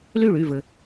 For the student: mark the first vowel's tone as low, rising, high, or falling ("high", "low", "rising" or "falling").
falling